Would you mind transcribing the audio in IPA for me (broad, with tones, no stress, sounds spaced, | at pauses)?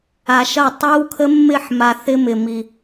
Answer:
a˨ ʃ ɐ˦˨ tˤ ɯ˦ w kʰ ə˦ mː ɪ˦˨ ħ m a˨ θ ɪ˦ m ɪ˨ m i˨